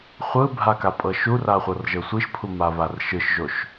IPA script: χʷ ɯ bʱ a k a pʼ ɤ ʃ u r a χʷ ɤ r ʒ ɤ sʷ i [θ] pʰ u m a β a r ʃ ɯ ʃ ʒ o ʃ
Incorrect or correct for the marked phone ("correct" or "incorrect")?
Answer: incorrect